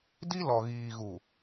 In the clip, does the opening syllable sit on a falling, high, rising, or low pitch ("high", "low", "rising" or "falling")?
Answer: high